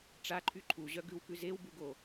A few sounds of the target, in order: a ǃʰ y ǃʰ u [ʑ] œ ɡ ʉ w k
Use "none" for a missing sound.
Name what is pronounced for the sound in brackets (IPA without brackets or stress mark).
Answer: ʑ